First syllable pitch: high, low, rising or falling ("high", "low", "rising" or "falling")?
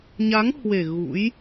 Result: rising